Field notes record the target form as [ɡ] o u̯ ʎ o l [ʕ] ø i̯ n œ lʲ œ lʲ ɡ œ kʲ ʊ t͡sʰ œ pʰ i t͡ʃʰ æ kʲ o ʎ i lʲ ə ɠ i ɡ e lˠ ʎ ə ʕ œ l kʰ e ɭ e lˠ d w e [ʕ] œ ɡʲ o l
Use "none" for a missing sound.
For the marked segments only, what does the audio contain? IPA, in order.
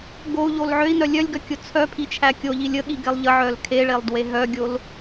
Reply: ɡ, ʕ, ɦ

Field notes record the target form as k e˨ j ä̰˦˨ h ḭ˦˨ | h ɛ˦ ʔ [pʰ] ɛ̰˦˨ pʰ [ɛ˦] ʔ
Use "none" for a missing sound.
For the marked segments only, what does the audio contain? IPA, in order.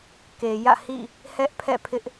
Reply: pʰ, ɪ˦

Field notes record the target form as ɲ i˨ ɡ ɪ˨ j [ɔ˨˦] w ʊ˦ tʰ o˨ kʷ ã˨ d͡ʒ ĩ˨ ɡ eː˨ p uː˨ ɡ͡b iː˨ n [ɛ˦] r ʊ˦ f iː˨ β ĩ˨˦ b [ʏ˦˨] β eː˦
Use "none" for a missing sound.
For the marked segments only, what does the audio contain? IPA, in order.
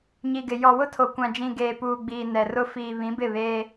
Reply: ɔ˨, ɛ˨, ɪ˦˨

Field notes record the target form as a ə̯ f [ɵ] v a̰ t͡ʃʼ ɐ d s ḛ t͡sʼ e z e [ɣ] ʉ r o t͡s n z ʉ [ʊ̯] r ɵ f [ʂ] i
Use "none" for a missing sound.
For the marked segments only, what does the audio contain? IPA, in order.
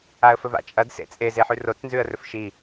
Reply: ɵ, ħ, ə̯, ʃ

